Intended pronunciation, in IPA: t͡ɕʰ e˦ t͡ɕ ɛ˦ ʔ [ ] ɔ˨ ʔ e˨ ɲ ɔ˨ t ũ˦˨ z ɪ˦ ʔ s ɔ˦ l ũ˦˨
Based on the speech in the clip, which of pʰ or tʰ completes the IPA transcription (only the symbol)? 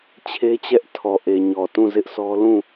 tʰ